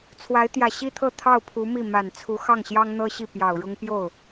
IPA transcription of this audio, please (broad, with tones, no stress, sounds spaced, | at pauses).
t͡sʰ w a˧˥ ɪ̯ t̪ j ä˨˩ ɕ i˥ t̪ʰ ɤ˥˧ t̪ʰ ɑ˥˩ ʊ̯ pʰ u˧˥ m i˥˩ m a˨˩ n t͡sʰ u˧˥ x ɑ˥˩ ŋ ɕ j ɑ˥ ŋ n̪ ɤ˥ ɕ i˥˩ p j ɑ˨˩ ʊ̯ ɻ ʊ˥ ŋ p j o˥˩ ʊ̯